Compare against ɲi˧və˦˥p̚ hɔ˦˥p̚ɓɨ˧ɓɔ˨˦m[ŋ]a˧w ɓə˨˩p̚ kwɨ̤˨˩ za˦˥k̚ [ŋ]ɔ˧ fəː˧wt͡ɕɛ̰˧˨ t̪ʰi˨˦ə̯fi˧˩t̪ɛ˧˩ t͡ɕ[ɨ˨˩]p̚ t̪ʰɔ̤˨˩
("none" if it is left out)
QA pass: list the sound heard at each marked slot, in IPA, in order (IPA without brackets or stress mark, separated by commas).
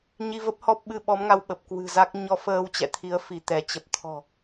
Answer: ŋ, ɲ, ə˨˩